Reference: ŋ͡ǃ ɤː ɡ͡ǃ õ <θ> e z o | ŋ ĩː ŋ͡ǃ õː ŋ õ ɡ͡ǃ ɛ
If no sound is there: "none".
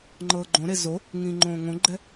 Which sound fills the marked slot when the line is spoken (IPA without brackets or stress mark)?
ɾ